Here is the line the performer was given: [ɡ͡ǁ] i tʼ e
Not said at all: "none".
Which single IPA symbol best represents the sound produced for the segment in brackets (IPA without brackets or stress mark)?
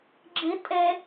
ɡ͡ǁ